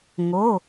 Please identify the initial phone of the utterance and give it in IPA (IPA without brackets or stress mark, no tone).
ŋ